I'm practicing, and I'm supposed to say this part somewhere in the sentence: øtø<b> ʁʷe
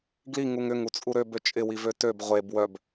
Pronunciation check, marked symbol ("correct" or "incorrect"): correct